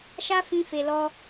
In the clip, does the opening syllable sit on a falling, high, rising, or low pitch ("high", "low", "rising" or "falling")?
high